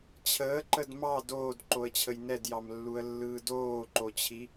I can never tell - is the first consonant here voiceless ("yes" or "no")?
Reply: yes